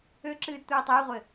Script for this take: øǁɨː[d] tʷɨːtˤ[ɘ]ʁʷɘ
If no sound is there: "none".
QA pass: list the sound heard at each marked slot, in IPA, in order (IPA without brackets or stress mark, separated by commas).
d, ɘː